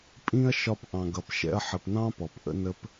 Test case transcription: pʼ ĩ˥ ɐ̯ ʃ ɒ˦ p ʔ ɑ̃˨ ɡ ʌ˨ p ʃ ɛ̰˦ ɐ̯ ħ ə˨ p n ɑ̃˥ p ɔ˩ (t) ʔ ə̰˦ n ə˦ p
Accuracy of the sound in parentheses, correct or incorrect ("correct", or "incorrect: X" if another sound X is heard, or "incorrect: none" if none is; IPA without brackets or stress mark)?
incorrect: p